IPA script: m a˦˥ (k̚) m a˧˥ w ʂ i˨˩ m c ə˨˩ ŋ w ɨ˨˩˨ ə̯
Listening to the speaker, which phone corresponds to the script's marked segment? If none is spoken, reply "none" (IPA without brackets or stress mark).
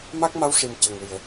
k̚